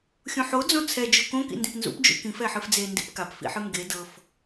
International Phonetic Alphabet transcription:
xʲũħo d͡zõt͡sʰɛ d͡ʒukõ kḭndĩpnzṵp d͡ʒṵkĩf ɛħɯfd͡ze ndḭpkap fḭħɯŋɡe dɤf

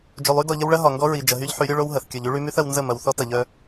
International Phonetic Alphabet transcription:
d͡ʒo˨lˠy˦dɔ˨ʎə˦w ɭɐ˦ɦɒ˨ŋɡɔ˦ ɹi˨ d͡ʒɐ˨ɦy˦ʎħy˨˦ɾʲo˦ ɭo˦wɦɐ˨θ kʲɔ˨ʎy˦ɭy˦my˦θ ɐ˦w nzə˦˨mɐ˨wθɔ˦ tɐ˨ʎœ˦

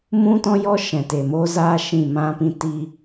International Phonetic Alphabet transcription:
mũ˦tɔ̃˦jɔ˦ ʃɛ̃˨te˨ mo˦zaː˦ ʃĩ˦˨mã˦pĩ˦ ti˦

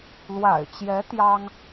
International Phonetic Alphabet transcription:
lwa̰˨˩ɪ̯t͡ɕjɛ˧˥ t̪jɑ˥ŋ

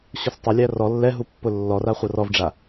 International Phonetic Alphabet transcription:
ɕʊstˤʊlʲæ rɔ lːɛɦu pːʊlːɔra χʷɐrɔvɖ͡ʐa

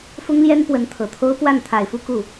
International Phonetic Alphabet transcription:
fʊ˥ŋljɛ˥n pwə˧˥nt̪ʰɤ˨˩t̪ʰo˥ʊ̯ pwa˥˩n t̪ʰa˨˩ɪ̯fu˥˧ ku˥˩

